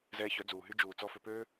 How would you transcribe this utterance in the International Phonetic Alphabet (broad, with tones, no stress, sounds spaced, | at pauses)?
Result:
z ɛː˧ ç œ˨˦ d͡z uː˨ ɦ y˧ d͡ʒ uː˨ t͡s ɔ˧ f ʏ˧ p ø˦